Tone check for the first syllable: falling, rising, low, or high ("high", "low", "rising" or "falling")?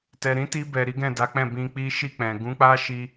low